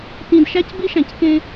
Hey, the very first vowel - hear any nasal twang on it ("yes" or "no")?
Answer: yes